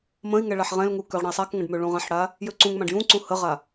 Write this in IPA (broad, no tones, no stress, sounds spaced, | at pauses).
m ə̃ i̯ ŋ ɛ ɭ a ħ ʁ ɛ̃ l ŋ u k ø ʁ ɽ ə̃ i̯ sˤ a k ŋ ə̃ ɖ m ø ɭ ũ ʁ ã ħ ɽ a | j ø ǀ ũ ŋ m ã ɖ j ũ ǀ ũ h ə ʁ a